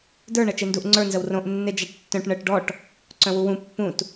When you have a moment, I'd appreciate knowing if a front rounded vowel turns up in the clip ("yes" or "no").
yes